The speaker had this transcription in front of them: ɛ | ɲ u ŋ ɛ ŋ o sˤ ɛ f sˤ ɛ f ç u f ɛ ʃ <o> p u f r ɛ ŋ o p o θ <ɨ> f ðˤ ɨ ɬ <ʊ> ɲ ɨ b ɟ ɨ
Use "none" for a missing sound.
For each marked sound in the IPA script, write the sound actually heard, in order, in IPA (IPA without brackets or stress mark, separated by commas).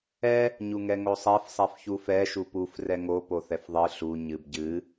u, ɛ, u